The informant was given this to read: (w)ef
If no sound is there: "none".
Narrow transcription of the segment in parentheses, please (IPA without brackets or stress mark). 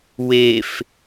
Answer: w